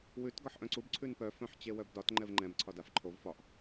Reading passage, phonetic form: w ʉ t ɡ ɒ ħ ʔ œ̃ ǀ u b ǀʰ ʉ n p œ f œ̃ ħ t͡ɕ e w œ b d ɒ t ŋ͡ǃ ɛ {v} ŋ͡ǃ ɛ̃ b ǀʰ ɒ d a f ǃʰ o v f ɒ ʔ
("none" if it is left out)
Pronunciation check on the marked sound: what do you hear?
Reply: v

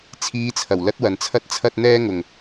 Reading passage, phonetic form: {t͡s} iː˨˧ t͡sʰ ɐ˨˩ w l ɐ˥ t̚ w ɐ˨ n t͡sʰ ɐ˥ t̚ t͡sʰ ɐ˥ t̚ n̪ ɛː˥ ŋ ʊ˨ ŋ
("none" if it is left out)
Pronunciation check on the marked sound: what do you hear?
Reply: t͡sʰ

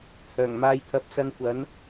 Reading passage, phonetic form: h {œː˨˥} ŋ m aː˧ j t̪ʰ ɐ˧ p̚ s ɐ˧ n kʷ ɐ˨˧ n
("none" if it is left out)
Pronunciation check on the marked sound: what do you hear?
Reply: œː˨˩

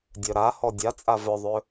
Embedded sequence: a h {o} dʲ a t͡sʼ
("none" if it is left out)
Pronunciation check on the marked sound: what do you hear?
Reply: ɔ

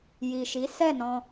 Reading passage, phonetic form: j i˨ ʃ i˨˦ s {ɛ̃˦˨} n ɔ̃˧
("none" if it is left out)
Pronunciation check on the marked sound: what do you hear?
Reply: ɛ˦˨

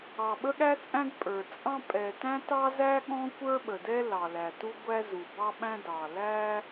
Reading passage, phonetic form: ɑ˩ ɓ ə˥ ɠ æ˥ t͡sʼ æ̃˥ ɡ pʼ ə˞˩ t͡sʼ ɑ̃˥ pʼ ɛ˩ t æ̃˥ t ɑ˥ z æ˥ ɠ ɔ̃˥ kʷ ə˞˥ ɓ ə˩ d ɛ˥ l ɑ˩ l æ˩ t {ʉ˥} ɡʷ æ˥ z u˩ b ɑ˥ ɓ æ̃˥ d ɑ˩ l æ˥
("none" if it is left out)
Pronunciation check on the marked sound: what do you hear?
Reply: u˥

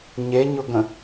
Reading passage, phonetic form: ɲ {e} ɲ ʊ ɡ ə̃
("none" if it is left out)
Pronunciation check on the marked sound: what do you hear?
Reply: e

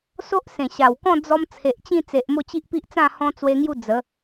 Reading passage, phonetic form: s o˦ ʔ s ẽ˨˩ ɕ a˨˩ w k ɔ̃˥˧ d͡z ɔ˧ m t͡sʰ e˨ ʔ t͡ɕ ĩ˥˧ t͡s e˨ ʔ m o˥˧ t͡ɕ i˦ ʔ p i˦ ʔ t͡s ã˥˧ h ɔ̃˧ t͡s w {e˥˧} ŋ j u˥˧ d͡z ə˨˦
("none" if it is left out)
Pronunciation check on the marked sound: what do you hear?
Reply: e˧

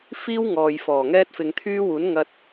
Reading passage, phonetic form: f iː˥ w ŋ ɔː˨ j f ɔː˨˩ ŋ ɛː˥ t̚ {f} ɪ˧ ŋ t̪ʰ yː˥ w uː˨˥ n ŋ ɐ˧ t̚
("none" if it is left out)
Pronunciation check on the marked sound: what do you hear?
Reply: f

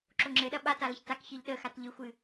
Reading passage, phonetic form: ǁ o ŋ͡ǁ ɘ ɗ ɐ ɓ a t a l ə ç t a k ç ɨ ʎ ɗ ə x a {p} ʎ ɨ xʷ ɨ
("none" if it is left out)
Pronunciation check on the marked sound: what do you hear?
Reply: t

